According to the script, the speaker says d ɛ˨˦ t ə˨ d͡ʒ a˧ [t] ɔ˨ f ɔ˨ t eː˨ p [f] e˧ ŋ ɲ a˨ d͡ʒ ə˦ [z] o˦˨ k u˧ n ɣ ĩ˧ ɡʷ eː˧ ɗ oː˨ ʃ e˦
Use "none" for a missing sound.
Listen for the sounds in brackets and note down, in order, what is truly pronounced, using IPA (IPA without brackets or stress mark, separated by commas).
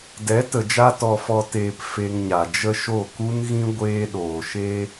t, f, ʃ